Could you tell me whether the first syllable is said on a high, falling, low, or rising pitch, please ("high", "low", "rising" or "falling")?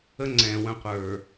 high